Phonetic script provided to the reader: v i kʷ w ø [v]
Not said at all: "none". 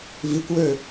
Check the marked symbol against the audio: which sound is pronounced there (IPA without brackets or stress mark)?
none